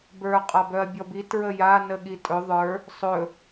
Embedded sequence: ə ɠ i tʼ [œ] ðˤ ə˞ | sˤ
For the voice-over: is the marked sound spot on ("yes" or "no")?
no